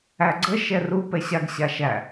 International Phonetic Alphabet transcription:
æ ɡ͡ǀ ə ʃ ɛ r u p ɛ ɕ a ɡ ɕ a ʃ æ

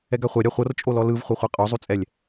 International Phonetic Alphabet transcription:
ɛ ɡ a χʷ ɛ ɾʲ a χʷ ɤ r t͡ʃʼ o l ɔ l ɯ v χʷ ɤ χʷ i qʼ o zˤ u t͡sʼ ɛ lʲ

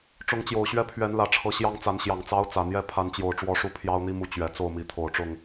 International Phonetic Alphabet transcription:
ʈ͡ʂ ʊ˨˦ ŋ t͡ɕ j o˨˩ ʊ̯ ɕ ɥ ɛ˦ pʰ ɥ ɛ˨˦ n l ä˨˩ ʈ͡ʂʰ ɤ˨˦ ɕ j ɑ˦ ŋ t͡s a˨˦ n ɕ j ɑ˨˩ ŋ t͡s ɑ˦ ʊ̯ t͡s ä˨˩ n̪ j ɛ˦ pʰ a˨˦ n t͡ɕ j o˨˩ ʊ̯ ʈ͡ʂ w ɔ˦ ʂ u˦ pʰ j ɑ˦ ʊ̯ n̪ i˦ m u˨˦ t͡ɕ ɥ ɛ˨˩ t͡s o˥˨ ʊ̯ m i˨˦ t̪ʰ o˨˩ ʊ̯ ʈ͡ʂ ʊ˥˨ ŋ

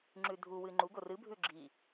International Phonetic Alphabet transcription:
ŋ͡ǁ ʉ dʱ u w ɨː ŋ͡ǃ u ɡ o r ɨ bʱ ʉ ɡ͡ǁ i

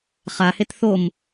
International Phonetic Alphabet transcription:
χ a h e t θ o m

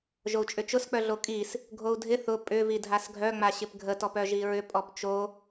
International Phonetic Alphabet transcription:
ʒ o u̯ t͡ʃʼ ʏ t͡ʃ ʊ s k͡p œ ɮ o kʼ i s | ɡʱ o u̯ dʱ ɪ θ ʊ pʼ ʏ v i dʱ a s ɡʱ œ ŋ͡m a ɕ ɪ p ɡʱ ə t ɔ p œ ʒ i ɹ ʏ pʼ ɔ p t͡ʃ o

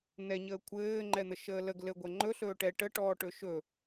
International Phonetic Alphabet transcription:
n ɛ ɲ əː kʷʰ ɘː ŋ͡ǃ ɛ n̪ ə ʃ əː l ə ɡ l ɘ ɡʷ ɛ ŋ͡ǃ ɵ ɬ ɵː ʈ ɛ ʈ ə ʈ ɔː ʈ ɵ ʃ ɵ

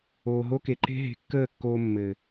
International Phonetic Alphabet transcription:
oː˨ ɦ o˧ k e˨ ǃ e̤˧ ɦ e̤˨˦ kː əː˦˨ kː oː˧ mː ɘ˨

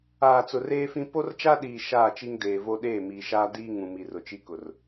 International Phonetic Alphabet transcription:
aː˨ t͡s ʊ˨ r eː˦ f ĩ˦ p o˦ r t͡ʃ a˦ ɗ iː˨ ʃ aː˦˨ t͡ʃ i˦ ŋ d eː˨ v o˦ ɗ eː˦˨ m iː˨ ʃ aː˦ d iː˦ ŋ ũ˨ m i˨ r ʊ˨ t͡ʃ i˦ k ʊ˨ r

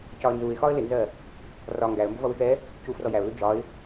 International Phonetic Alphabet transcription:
c ɒ ə̯ n z u ɪ̯ x ɒ ə̯ l ɪ n z ɜ | r ɒ ŋ ɡ æ ə̯ m b ʊ v ʌ w ɪ x ɛ | c u f r ɔ j æ ʊ̯ l u d͡ʒ ɒ ɪ̯

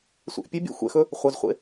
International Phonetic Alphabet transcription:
sʷ ɛ̰ ʔ pʲ ɘ bʲ ɛ̰ xʷ ɛ̰ x ɵ | χʷ ɐ z χʷ ḛ

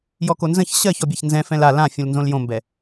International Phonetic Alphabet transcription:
j ɔ k o n z ə̃ ç ɕ ɜ ç ɔ bʲ a ç n z ɛ̃ f ɛ̃ l a l ã fʲ ũ l n z õ l j õ m b ɛ

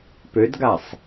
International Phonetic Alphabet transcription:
p ø d ɡ a sˤ

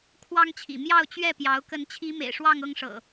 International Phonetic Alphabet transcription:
kʰ w ɑ˦ ŋ t͡ɕʰ ḭ˨˩ m j ɑ˥˨ ʊ̯ t͡ɕ ɥ ɛ˥˨ p j ɑ˨˦ ʊ̯ k ə˨˦ n t͡ɕʰ i˨˦ m ḛ˨˩ ɪ̯ ʂ w ɑ˥˨ ŋ ɤ˥˨ ŋ ʂ ɤ̰˨˩

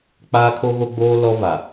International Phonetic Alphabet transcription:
k͡p aː˦ kʰ o˦ ɣ o˦ ɡ͡b oː˦ l ɔ˦ v a˨

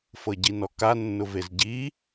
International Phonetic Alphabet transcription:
f ɤ ɟ i n ɔ k a nː ʊ v e z ɟ i

